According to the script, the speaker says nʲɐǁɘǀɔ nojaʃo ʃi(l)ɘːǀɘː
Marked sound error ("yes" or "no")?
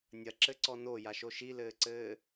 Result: no